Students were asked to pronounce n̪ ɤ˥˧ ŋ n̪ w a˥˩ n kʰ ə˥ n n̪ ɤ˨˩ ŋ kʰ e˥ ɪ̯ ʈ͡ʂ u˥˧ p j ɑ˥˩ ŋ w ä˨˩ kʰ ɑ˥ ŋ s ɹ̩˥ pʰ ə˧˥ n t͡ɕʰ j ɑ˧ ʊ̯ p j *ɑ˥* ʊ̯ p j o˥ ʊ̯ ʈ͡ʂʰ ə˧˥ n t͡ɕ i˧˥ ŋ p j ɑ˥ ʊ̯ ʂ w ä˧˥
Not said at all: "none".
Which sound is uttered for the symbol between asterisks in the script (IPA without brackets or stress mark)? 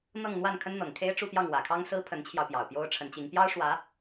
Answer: ɑ˨˩